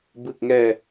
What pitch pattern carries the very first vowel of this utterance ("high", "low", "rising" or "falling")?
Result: low